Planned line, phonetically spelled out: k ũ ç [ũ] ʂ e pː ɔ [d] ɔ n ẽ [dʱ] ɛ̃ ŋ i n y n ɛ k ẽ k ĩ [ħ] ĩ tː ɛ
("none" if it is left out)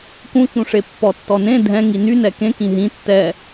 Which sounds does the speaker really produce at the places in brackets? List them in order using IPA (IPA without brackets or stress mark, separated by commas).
ũ, tː, dʱ, ɦ